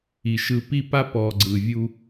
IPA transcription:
i˨ ʃ ɯ˨ p i˦ p a˦ p ɔ˨ ɡ͡ǀ ɯ˨ vʲ u˦

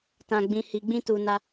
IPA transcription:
t ã˨ ɡ͡b ĩ˨ h i˨ ɡ͡b ĩ˧ t u˨ n a˧

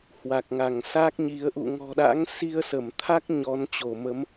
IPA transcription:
h w a˨˩ k̚ ŋ a˧˩ ŋ s a˦˥ k̚ ɲ i˨˦ ə̯ ʔ ṵ˧˨ ŋ ɔ̤˨˩ ɗ a̰˧˥ ŋ s i˧ ə̯ s ə˧˩ m t̪ʰ a˦˥ k̚ ɲ ɔ˨˦ n t͡ɕ o˧˩ m ə˨˦ m

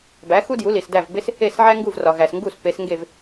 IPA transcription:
b æ˩˥ x u˥ d j u˩˥ l i˩ s d æ˥˩ v b e˥ s | e˥˩ s ʕ æ˥ ŋ ɡ u˥˩ v r ɒ˩ ɣ æ˩ s ŋ ɡ u˥˩ s p e˩˥ s ŋ ɡ e˥˩ v

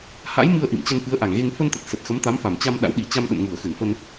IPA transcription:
h a̰˧˥ j m ɨ˧ ə̯ ʔ ḭ˧˨ m t͡ɕ ə˧ n f ɨ˨˦ ə̯ ʔ a˧˩ ŋ ɣ e˧ ŋ f ə˧ n t̪ ə˨˩ t̚ s ə˨˩ t̚ x ə˨˦ m t̪ a˨˦ m f a˧˩ m t͡ɕ a˧ m ɗ a̰˧˥ w ɗ i˧˩ t͡ɕ a˧ m ɗ ə̰˧˨ n ŋ u˧˩ ə̯ x ɨ˧˩ n f ə˧ n

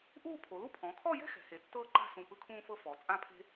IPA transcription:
ʔ uː˥˧ pʰ o˩˧ l u˥ pʰ ɔ̃˩˧ kʰ ɔ˥˧ j ɛ̤˥ x ɛ̤˩˧ h e˩˧ tː ɤː˥ ǃ a̤˥˧ s ũ˧˩ p ɯ˥ kʰ ũː˥ f ɤ˥ f ɔ˩˧ t͡sʼ ã˥˧ pʰ e̤˥

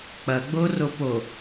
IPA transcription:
k͡p ɐ ɡ͡b o r o p o

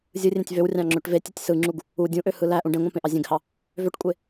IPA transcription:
zʲ ɯ rʲ ẽ tʲ v ø w rʲ ɑ̃ ŋ͡ǁ ø ʈ v e tʲ ɯ tʲ s ɯ ŋ͡ǁ u ɡ | u dʲ ũ ʔ ø h ɯ l æ ʔ ũ ɖ ẽ ŋʷ ɑ̃ p ẽ ʔ ɑ zʲ ẽ ɡ h ɑ | v ø ʈ kʷʼ e

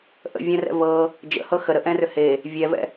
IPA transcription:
ʔ ə̰ vʲ ɛ̃ r ɛ̰ v ɤ | d͡ʒ ə̰ h ɤ x ə ɾ ə ʔ ɛ̃ r ʏ h e | vʲ ɛ v ɛ̰

